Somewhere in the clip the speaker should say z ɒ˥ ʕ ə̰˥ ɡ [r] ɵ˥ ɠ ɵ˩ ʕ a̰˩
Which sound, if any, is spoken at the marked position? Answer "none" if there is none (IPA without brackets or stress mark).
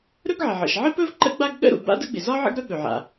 ɾ